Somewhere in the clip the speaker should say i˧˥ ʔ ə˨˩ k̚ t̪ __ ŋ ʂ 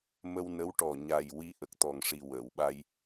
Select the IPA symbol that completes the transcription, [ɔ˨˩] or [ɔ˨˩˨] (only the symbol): ɔ˨˩